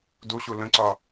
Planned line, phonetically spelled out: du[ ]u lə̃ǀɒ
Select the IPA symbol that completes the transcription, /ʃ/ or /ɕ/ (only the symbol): ɕ